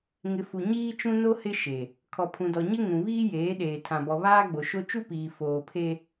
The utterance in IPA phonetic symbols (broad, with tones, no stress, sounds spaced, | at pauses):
ŋ ɪ˨ f u˨ ɲ iː˦ t͡ʃ ũ˦ n o˦ h ɪ˦ ʃ e˨ | kʰ ɔ˨ pʰ ũ˨ d ɔ˨ ɲ ɪ˦ ŋ ũ˨ β iː˦ j eː˨˦ ɗ eː˨ tʰ ã˨ b ɔ˨ β aː˦ ɡ͡b o˨ ʃ o˦ t͡ʃ u˦ p iː˨ f oː˨ pʰ e˦